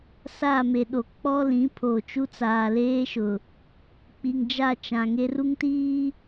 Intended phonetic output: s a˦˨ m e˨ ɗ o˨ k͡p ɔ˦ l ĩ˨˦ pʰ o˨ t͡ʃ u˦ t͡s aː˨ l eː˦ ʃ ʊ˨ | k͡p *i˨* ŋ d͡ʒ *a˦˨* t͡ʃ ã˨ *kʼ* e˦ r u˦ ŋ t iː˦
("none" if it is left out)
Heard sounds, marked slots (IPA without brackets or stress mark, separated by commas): i˨, a˦˨, ŋ